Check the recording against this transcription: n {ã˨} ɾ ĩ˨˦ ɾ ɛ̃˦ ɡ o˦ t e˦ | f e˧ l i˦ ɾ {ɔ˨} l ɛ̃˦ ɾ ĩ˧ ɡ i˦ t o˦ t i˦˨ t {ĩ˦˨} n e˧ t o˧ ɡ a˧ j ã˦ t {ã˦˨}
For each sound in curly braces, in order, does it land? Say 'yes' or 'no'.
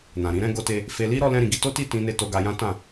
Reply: yes, no, no, yes

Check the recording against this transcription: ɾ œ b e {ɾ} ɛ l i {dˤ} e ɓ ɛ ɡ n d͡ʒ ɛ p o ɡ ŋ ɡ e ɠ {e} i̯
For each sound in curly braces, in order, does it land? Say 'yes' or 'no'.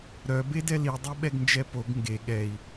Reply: no, yes, no

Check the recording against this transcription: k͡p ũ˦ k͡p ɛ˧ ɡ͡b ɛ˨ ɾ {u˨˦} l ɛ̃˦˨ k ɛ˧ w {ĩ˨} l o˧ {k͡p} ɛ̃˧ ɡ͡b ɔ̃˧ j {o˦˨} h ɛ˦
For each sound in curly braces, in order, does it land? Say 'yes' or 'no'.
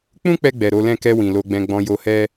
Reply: no, yes, no, no

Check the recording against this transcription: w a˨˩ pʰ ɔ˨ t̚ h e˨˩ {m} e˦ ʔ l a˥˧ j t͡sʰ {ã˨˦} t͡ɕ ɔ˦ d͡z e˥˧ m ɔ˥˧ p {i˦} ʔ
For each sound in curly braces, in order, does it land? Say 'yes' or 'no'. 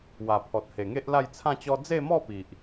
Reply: no, no, no

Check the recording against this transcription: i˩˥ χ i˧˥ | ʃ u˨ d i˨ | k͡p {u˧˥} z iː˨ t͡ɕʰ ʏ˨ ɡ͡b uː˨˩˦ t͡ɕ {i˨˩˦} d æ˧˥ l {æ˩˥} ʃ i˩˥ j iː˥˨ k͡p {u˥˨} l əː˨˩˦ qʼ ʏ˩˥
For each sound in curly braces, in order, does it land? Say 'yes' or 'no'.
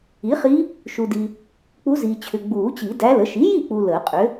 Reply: yes, yes, no, no

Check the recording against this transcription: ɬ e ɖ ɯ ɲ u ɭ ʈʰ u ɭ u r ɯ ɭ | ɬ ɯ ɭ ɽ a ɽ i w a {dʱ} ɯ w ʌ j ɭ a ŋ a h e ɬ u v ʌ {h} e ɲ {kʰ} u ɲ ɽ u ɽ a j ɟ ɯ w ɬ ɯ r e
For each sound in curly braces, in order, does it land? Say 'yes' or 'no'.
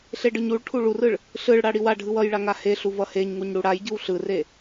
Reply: no, yes, no

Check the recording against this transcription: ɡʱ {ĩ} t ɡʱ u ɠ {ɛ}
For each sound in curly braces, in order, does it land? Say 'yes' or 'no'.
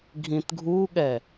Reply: yes, yes

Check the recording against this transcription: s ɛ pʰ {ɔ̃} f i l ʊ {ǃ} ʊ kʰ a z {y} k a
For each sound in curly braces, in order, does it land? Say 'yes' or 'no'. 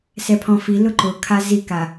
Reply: yes, yes, no

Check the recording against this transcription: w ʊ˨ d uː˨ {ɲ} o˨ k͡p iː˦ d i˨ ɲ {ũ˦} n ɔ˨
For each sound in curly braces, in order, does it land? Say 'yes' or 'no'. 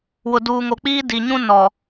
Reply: no, yes

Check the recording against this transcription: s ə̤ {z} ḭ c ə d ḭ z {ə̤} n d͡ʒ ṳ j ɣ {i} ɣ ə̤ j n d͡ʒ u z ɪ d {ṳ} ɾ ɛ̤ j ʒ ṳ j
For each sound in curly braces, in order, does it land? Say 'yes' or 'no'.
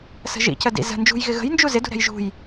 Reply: no, yes, no, yes

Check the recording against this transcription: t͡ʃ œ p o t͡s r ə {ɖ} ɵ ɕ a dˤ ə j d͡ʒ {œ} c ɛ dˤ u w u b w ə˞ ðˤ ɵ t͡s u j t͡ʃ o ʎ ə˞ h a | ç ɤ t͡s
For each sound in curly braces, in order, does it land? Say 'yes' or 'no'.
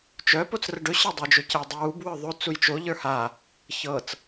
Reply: yes, no

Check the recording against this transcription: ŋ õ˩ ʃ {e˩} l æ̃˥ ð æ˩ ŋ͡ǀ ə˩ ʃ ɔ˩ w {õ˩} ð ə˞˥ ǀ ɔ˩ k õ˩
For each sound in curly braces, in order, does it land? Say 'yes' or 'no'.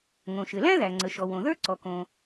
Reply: no, yes

